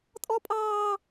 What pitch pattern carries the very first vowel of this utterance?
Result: high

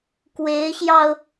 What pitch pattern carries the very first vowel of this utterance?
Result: rising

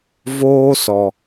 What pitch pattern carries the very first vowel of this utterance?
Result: high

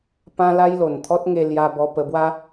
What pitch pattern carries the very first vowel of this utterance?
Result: high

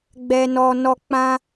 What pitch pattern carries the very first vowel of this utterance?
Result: low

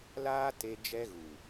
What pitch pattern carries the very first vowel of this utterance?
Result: high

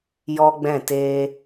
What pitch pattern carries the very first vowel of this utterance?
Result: high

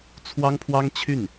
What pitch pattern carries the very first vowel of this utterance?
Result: high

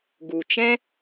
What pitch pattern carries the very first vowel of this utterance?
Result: low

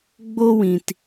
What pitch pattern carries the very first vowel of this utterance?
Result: high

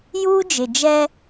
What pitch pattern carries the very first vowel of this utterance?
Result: high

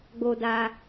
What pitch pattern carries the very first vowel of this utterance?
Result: low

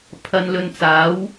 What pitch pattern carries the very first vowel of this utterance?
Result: low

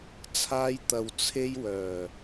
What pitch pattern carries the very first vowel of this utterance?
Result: high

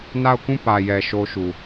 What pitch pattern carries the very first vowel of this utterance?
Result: falling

